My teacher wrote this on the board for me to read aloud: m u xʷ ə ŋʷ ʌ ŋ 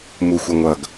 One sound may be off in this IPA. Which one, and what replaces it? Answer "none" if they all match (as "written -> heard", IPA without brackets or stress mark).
ŋ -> ɡ